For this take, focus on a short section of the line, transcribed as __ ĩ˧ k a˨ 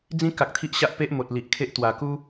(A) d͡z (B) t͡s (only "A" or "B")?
A